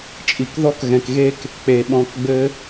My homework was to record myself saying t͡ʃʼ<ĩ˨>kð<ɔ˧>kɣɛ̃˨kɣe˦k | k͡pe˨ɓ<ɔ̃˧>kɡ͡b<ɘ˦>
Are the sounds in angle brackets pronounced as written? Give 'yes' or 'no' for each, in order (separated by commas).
no, no, yes, yes